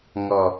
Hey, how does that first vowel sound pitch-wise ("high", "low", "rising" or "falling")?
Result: low